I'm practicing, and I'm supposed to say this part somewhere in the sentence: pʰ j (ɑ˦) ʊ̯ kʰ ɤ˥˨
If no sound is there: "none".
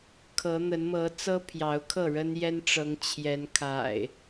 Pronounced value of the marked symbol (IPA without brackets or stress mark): ɑ˨˦